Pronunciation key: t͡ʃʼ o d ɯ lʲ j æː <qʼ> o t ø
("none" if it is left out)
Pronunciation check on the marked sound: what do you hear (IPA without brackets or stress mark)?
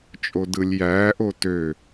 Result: ʔ